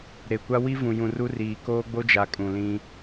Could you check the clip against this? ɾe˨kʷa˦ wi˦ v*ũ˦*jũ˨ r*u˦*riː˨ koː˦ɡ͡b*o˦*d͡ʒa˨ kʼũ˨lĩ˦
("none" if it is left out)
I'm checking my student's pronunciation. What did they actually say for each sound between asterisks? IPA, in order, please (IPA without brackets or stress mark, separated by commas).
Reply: ũ˨, u˦, o˦